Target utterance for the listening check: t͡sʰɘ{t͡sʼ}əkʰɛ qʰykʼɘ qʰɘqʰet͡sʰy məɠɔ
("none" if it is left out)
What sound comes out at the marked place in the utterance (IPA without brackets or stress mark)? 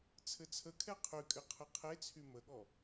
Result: t͡sʰ